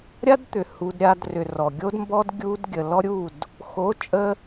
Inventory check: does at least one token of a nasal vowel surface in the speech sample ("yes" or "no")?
no